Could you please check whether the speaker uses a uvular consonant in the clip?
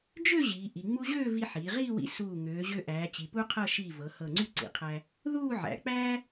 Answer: yes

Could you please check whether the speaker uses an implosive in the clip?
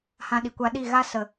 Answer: yes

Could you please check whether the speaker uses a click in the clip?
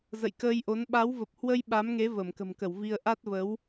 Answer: no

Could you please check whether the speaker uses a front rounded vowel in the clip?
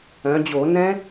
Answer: yes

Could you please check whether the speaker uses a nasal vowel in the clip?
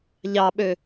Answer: no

